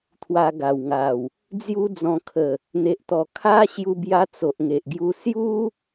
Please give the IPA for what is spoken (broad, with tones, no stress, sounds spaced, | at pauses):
t̪ʰ w a˧ ɡ a˨˩ w ŋ a˨˩ w | d͡z j u˦ d͡z ɔ̃˧ kʰ ə˨˩ | n̪ e˨ ʔ t̪ ɔ˨˩ kʰ a˦ ɕ j u˧ b j a˧ t͡s o˨ ʔ ŋ e˨ ʔ ɡ j u˧ s j u˦